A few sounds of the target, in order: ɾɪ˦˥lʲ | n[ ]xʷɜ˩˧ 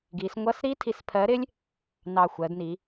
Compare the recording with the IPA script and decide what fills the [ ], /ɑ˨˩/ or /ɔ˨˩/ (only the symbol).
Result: ɑ˨˩